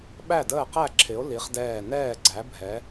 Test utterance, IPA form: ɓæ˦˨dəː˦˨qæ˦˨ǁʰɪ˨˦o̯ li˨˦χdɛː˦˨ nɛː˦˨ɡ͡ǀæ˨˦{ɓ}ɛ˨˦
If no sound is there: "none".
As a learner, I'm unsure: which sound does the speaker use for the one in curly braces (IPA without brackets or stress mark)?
bʱ